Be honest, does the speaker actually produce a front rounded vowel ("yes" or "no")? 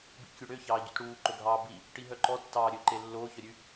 yes